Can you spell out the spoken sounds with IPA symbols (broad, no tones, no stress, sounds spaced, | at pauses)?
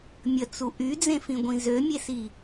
mʲ ə t͡s u ʔ y d͡z ẽ f ĩ ɡʷ ĩ z ø mʲ e s i